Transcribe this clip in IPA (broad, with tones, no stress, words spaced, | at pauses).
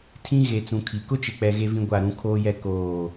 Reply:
tʰĩ˦ ɣe˨t͡sũ˨kʰi˨ kʊ˦t͡ʃɪ˨k͡pɛ˨ ɣe˦vĩ˦ɡʷa˦˨ ɾũ˦kʰoː˦jɛ˦ koː˦˨